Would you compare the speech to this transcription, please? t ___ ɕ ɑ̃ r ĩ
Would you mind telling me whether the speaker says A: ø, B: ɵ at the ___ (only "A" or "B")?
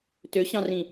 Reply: A